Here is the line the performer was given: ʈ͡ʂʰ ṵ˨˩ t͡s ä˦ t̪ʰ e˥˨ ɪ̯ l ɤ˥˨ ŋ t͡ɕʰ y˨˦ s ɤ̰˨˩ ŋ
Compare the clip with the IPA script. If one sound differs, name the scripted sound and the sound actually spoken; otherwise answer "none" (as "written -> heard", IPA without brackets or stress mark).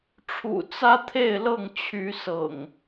none